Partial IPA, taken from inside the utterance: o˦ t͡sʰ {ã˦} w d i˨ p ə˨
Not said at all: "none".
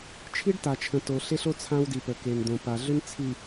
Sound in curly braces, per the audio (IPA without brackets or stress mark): ã˦